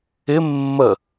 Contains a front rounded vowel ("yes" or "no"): no